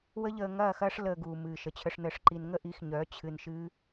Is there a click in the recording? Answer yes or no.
yes